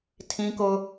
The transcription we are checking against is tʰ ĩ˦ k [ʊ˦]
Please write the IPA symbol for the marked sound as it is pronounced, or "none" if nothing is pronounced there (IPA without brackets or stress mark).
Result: ʊ˦